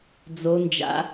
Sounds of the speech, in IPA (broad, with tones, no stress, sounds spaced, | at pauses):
d͡z o˦˥ n d͡ʒ a̰˦˥